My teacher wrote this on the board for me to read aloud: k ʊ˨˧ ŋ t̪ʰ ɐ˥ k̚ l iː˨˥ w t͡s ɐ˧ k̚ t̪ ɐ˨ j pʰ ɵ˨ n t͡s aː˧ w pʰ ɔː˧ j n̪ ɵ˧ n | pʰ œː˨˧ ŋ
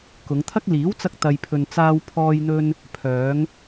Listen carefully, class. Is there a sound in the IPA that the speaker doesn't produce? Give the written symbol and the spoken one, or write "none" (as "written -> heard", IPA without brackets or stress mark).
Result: none